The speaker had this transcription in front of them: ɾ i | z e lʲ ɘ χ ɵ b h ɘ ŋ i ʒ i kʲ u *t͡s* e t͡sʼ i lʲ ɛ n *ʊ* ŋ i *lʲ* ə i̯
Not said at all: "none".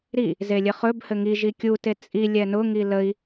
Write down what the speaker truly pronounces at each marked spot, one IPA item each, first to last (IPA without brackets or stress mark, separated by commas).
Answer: t, ʊ, l